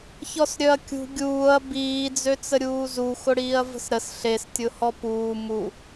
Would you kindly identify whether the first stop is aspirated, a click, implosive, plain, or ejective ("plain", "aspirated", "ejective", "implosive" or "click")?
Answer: plain